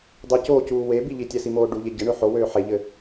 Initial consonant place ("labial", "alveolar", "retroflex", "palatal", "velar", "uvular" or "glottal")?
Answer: alveolar